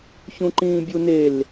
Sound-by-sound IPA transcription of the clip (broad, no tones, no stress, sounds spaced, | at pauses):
ç ũ ǃ ĩː bʲ u n e l